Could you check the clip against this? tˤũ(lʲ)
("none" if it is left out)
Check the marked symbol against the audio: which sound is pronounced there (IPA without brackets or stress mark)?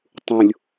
lʲ